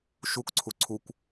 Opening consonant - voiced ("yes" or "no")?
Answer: no